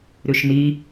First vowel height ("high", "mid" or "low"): high